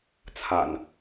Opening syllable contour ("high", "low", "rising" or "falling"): low